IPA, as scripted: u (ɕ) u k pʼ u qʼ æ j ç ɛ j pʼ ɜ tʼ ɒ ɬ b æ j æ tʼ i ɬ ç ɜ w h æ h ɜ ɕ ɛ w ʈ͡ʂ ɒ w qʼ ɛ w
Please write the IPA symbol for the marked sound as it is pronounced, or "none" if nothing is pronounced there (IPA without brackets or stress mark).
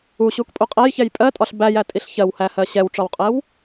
ɕ